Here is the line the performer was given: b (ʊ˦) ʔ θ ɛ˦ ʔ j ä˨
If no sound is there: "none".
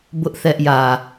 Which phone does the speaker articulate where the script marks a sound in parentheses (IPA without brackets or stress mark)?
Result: ʊ˦